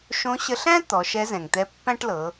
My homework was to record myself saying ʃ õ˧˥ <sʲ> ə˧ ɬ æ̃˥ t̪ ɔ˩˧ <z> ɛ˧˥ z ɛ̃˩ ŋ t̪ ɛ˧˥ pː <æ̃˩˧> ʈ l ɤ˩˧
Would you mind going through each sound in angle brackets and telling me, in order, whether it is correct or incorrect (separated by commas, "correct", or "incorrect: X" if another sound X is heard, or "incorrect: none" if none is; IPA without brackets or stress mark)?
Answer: incorrect: ɕ, incorrect: ʃ, incorrect: æ̃˥